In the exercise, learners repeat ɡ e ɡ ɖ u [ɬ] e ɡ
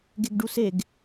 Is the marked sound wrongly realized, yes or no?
yes